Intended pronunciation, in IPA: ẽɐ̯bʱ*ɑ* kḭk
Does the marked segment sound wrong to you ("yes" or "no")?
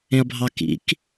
no